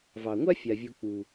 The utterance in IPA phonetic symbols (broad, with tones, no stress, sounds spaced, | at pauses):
v ɑ˩ ŋʷ a˥ fʲ a˩ vʲ u˨ k͡p u˩